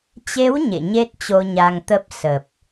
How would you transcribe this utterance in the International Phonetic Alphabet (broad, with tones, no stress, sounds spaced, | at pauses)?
t͡ɕ e˨˦ w ɲ ḛ˧˨ ɲ e˦˥ t̚ t͡ɕ o˧ ɲ a˧ ŋ t̪ ə˦˥ p̚ s ə˨˩ p̚